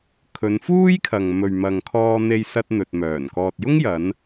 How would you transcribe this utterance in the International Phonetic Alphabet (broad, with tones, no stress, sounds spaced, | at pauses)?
kʰ ɵ˨˧ n f uː˥ j kʰ ɐ˨ ŋ m ɵ˨ ɥ m ɐ˨ ŋ kʰ ɔː˧ n̪ e˧ j s ɐ˧ t̚ n̪ ɵ˨ t̚ m œː˨˩ n k ɔː˨ t̚ j ʊ˥ ŋ j ɐ˨˧ n